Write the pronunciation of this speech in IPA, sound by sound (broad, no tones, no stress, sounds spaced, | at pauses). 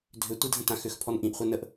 dʱ ʏ tʷ i dʱ ə̃ t ã x ʏ x pʰ ɔ n ʔ ĩ ʔ χʷ ɛ n ə ʔ